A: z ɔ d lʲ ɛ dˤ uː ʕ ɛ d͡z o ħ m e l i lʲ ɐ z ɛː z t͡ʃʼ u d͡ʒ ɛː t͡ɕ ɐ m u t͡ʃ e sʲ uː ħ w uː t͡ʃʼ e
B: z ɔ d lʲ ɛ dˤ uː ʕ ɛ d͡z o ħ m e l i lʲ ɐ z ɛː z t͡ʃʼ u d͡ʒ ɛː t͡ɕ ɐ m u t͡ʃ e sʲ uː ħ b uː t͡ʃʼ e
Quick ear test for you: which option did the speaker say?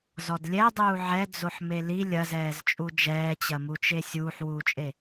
A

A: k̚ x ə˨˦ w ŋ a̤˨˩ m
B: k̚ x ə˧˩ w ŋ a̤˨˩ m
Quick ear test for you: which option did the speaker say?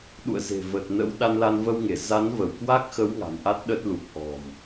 A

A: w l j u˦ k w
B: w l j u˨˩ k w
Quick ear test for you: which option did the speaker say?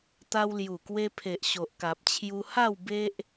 B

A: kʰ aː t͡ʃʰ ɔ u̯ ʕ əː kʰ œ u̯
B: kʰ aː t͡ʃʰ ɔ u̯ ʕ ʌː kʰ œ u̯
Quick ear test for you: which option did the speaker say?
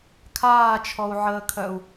A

